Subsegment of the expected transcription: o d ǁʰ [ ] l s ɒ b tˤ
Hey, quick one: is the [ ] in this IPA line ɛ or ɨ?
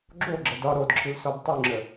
ɨ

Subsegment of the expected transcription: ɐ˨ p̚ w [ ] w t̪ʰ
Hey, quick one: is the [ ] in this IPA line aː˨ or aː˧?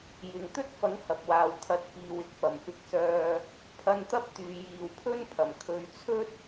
aː˨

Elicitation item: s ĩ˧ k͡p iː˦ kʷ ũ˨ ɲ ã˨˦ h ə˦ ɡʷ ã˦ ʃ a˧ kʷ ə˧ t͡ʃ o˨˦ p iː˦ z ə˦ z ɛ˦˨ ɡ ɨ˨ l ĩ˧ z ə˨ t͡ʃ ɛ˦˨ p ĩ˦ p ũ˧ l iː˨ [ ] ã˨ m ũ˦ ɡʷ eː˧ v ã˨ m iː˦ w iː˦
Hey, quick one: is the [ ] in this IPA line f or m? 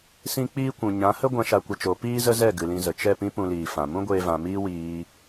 f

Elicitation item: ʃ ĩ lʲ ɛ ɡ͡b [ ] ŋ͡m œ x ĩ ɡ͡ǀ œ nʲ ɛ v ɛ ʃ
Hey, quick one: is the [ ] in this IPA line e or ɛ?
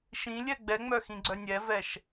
ɛ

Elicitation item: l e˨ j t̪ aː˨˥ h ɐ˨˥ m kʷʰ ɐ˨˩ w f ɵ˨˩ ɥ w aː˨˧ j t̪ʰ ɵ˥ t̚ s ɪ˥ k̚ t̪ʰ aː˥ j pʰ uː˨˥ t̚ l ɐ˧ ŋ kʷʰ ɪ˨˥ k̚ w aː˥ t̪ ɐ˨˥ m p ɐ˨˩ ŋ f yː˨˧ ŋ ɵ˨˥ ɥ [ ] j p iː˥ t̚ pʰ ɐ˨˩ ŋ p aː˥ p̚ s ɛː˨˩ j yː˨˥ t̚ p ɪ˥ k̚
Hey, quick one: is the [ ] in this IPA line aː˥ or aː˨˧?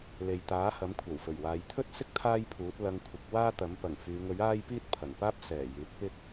aː˥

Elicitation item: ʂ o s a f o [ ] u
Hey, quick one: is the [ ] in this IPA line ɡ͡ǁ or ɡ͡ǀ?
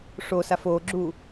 ɡ͡ǁ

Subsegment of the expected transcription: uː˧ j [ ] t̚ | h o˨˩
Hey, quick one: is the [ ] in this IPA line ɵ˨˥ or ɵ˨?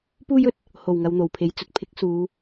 ɵ˨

